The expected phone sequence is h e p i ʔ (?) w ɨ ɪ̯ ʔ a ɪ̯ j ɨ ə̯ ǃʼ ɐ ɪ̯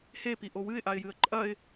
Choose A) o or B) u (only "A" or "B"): A